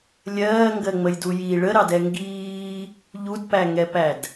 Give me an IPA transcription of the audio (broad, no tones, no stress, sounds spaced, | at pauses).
lʲ ɜː ŋ ɡ ɜ ŋ͡m ə j d u j i ɭ ə ɾ ɑ d ɛ ŋ ɡ iː | ʎ u d p æ ŋ ɛ p æ d